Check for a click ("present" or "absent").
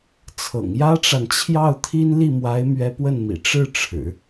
absent